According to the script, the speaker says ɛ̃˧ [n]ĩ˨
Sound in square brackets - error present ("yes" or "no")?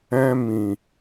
yes